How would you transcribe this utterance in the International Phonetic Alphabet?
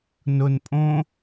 n ʊ n pʼ õ

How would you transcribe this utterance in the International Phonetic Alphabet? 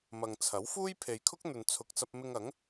m ɐ˨ ŋ t͡sʰ ɐ˨˥ w f uː˥ j pʰ e˨ j kʰ ʊ˥ k̚ n̪ ɵ˨ n t͡sʰ ʊ˨ k̚ t͡s ɐ˧ p̚ m ɪ˧ ŋ ɐ˨˥ ŋ

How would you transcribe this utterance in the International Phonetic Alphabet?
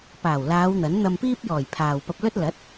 p aː˨˩ w l aː˨˧ w n̪ ɐ˨˥ n n̪ ɐ˧ m p iː˥ p̚ j ɔː˨˩ j pʰ aː˨ w p ɐ˧ p̚ l ɵ˥ t̚ l ɐ˨˥ t̚

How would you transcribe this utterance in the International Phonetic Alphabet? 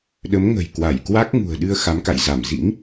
ɗ ə˨˦ m ŋ ə̤˨˩ j k w a˧˩ j k w a˦˥ k̚ ŋ ṳ˨˩ ə̯ ɗ ɨ˧ ə̯ x a˨˦ m k a̰˧˨ j z a˧˩ m z ḭ˧˥ ŋ

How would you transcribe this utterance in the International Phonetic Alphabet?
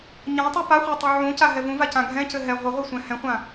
ɲ ã tˤ u p a χʷ a tˤ u ʕ ũ c a ɦ ɛ v ũ v a c ã ɡʱ ɛ̃ c ɘ ɦ ɛ ʁʷ ɘ ʁʷ ɛ sʷ ɛ̃ h ɛ̃ χʷ ã

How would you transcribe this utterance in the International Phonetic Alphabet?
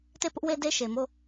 t e˦˨ p ʊ˦ ʔ w e˦ d e˦ ʃ e˨ m o˦˨

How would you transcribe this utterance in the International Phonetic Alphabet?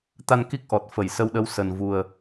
t̪ a˧ n k i˦˥ k̚ ʔ ɔ˨˩ t̚ f ə˧˩ j s ə˧ w ɗ ə˨˦ w s ə˨˩ n v u˨˩ ə̯

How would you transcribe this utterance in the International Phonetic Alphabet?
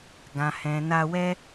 ɡ ã˨ h ɛ̃˨ n a˧ w ɛ˦

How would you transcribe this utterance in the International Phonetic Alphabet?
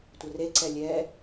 tʷ ə r e ǀ ɛ lʲ ɛ

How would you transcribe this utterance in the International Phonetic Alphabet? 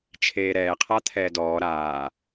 t͡ʃʰ eː ɾ ɛː qʰ a t̪ʰ ɛː d ɔː ɾ aː

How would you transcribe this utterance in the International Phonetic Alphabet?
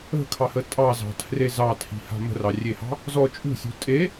ə̤ kʰ ɑ h ə tʼ ɑ z ɑ̤ tʰ r e z ɑ tʰ i̤ h a̤ m ə̤ r ɑ rʲ e h ɑ̤ | z ɔ t͡ʃʼ ṳ sʲ ṳ tʼ e

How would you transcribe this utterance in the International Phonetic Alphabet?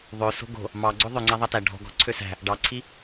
ðˤ ø s o̤ ɡ o̤ | m ɑ ɡ͡ǀ ɵ ðˤ ɵ ŋ͡ǀ æ ðˤ ɑ t æ ɖʱ ɔ̤ ɡ ɔ̤ ǀʰ ø s æ̤ | ɖ ɑ ǀʰ i

